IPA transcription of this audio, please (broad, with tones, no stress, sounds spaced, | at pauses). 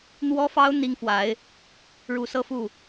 n̪ w ɔ˥ f ɑ˥ ʊ̯ n̪ i˥ ŋ f w a˧˥ ɪ̯ | ɻ u˧˥ s ɤ˥ f u˥˩